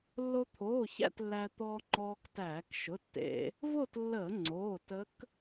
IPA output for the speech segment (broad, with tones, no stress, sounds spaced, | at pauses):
lː o˧ t̪ʰ oː˩˧˩ ç æ̰˥˧ t lː æ˧ t̪ ɔː˧ ŋ͡ǃ ɔː˧ k t æː˧˩˧ k ʃ ʊ˩˧˩ tː ḛ˧˩˧ | v o˥˧ t lː əː˧˩˧ ŋ͡ǀ oː˩˧˩ t ə˧˥ k